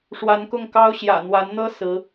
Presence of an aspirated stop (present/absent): absent